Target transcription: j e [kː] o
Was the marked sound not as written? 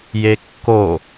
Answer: no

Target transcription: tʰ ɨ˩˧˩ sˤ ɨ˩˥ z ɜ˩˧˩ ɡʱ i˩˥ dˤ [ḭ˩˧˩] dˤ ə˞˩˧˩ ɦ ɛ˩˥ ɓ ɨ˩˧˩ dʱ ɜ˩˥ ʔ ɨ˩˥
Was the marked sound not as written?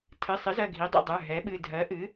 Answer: no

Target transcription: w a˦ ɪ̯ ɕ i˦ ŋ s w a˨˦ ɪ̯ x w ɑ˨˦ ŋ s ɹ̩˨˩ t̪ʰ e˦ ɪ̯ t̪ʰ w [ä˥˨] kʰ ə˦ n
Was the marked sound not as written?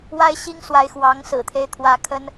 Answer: yes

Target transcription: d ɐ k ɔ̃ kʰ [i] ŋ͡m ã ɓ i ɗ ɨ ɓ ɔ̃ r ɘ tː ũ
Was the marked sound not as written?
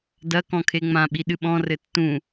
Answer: yes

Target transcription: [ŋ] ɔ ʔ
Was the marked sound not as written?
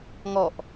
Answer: no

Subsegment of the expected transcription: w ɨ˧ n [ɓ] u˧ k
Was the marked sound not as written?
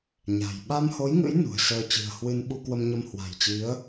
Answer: no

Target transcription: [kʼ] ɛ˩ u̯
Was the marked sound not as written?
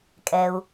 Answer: no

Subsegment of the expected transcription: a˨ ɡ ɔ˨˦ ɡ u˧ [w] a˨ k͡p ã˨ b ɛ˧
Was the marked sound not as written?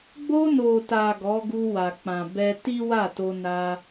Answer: no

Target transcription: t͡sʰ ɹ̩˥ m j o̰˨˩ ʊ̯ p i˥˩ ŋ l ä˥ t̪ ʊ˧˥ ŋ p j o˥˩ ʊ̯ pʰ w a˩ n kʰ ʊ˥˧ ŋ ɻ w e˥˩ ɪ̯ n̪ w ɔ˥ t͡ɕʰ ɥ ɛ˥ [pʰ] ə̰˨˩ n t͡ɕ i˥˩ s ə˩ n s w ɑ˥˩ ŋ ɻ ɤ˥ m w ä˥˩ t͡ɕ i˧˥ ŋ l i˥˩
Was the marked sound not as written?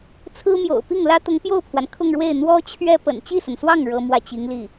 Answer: yes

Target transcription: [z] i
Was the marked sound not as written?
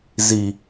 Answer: no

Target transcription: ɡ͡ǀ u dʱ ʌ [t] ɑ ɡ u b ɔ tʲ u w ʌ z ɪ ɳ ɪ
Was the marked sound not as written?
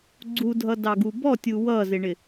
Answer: yes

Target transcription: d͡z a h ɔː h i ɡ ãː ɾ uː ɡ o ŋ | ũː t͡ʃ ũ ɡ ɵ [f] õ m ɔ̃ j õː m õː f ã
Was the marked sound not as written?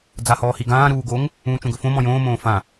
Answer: no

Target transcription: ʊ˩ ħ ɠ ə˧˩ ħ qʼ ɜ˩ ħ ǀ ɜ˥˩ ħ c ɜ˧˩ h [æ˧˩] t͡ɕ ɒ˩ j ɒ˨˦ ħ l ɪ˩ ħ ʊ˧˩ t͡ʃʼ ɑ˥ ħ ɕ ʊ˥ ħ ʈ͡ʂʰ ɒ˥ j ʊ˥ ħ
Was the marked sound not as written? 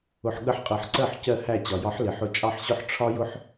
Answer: no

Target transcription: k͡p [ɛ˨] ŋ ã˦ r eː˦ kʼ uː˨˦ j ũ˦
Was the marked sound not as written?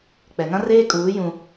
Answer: no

